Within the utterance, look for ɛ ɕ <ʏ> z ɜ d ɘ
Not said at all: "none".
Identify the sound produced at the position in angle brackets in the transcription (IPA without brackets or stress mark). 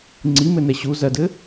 u